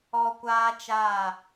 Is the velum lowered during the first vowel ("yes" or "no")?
no